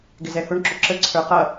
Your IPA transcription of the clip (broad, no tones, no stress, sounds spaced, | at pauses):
ɡ ɪ z ɛ h ʊ ɳ ǁ ʊ ǁ ə ǀʰ ə˞ q ʌ